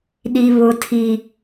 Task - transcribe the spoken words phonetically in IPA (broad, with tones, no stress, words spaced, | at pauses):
ɗi˦βʊ˦tʰi˦